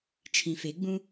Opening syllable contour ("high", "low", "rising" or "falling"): low